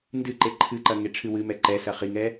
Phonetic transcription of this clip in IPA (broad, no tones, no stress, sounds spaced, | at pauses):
n d ɨ ǃ e ǃʰ ɨ ǃ ɐ ŋ e ʈ͡ʂʰ ɨ w ɨ m ɛ ǃ ɛ s ɐ χ i ŋ ɛ